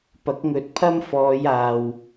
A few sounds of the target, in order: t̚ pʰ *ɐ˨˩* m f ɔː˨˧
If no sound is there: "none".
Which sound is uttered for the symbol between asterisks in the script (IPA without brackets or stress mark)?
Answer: ɐ˥